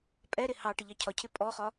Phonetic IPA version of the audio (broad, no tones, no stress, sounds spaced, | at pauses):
pʼ ɛ ɾ ɪ h ɑ ʈ ə ʎ ɑ cʰ ɒ cʰ ɪ pʼ ɔ χ ɒ